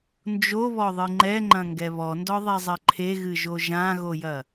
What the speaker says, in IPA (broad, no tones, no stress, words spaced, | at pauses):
nd͡ʒoβɔðˤɨ ŋ͡ǃɛŋ͡ǃɐ̃ŋɡɛ βɔndɔðˤɛzˤɘ ǃʰeɣɨʒo ʒãɣojɐ